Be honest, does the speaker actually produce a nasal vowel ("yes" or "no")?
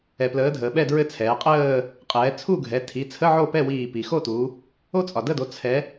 no